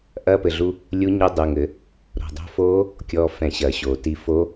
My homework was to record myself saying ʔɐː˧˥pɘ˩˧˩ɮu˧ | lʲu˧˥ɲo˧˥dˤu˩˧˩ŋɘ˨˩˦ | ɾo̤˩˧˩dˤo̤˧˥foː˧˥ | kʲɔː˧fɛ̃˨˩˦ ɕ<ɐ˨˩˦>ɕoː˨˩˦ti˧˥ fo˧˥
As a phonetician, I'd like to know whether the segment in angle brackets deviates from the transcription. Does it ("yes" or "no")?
no